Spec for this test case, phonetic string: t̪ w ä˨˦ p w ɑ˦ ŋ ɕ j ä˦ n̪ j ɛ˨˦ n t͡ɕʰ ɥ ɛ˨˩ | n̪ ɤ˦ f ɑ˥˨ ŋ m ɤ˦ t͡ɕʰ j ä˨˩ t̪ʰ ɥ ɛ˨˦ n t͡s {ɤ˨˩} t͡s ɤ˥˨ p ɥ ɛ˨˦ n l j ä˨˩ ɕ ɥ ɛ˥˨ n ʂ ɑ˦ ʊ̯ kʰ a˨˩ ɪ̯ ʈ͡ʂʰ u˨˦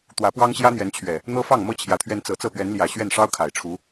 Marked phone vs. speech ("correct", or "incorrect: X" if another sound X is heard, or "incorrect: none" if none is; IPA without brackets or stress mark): correct